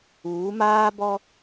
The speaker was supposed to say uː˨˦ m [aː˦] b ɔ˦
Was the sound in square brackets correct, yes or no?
yes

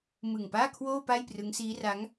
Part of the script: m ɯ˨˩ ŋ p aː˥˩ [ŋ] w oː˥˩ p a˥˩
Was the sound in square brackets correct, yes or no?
no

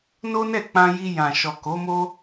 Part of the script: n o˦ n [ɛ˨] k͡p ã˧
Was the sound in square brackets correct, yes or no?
no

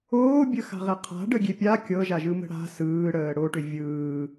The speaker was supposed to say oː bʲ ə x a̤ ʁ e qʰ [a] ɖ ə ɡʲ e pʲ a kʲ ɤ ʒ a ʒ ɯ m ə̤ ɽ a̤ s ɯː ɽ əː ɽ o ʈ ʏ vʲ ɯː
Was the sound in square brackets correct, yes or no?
no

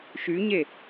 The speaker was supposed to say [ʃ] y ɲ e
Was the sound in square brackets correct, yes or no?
yes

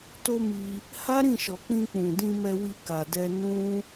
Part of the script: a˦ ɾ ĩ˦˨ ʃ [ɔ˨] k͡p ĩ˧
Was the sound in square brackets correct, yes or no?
yes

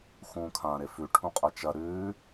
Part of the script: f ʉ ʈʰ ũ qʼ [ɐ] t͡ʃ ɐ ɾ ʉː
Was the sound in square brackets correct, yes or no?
yes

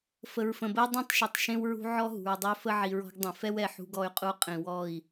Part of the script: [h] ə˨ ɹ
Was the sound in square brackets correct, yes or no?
no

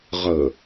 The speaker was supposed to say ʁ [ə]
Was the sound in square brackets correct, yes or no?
yes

